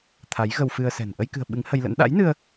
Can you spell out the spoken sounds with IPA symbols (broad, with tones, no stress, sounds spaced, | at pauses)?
t̪ʰ a˨˦ j ɣ ə˧ w f ɨ˧ ə̯ s ɛ̤˨˩ n ʔ ə˧ j k ɨ̤˨˩ ə̯ ɓ ɨ˨˦ ŋ h ə˧ j l ə̰˧˥ n ɗ a̰˧˥ j n ɨ˧ ə̯